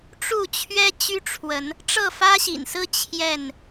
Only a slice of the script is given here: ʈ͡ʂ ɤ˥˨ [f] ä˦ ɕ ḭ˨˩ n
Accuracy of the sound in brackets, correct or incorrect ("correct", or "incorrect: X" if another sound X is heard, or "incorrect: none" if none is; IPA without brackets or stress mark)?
correct